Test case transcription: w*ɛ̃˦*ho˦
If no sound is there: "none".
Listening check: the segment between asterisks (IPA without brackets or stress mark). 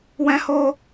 ɛ̃˦